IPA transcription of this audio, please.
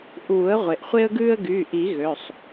ʔ uː˨˩˦ ə̯ ʁʷ e˩ ʔ χʷ e˦ ə̯ ɡ ʉː˦ ə̯ ɡ yː˩˧˩ ʔ i˨˩˦ ɣ ø˩˧˩ sˤ

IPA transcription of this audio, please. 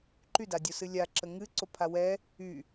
ǃ y d a dʲ o s ɨ lʲ a ǁ ə ŋ ɨ ǀ o pʰ a w ɛ | y

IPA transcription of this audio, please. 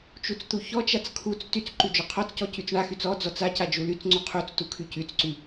t͡ʃ u t͡s t̪ u ç ɔ t͡ʃ a t͡s kʰ u t͡s t y t͡s ǃ y d͡ʒ ɔ qʰ ɔ t͡s c ɔ c y t͡s ɳ a x y t͡s ɔ d͡z ɔ t͡s a c a d͡ʒ u l y t͡s ŋ͡ǀ u qʰ u t͡s t u kʰ y c y t͡s ǀ y

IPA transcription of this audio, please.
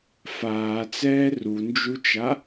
f aː t͡s ɛː r u n d͡ʒ u t͡ʃ a

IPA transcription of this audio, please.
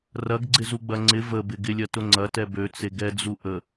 r ɐ ɡ ɡ͡ǀ ɪ z u ɡ͡b ɐ ŋ͡ǀ ɪ v ə b ɪ ɡ ɪ lʲ ɐ t ʊ ŋ͡ǀ ɐ t ɛ b ø t͡s e ɡ ɛ d͡z u ʔ ə

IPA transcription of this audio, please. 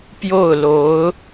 p j o˥˩ ʊ̯ l o˧˥ ʊ̯

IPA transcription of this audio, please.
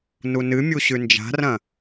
n u n ɨ mʲ u ɕ ʉ n d͡ʒ a̤ r ɐ̃

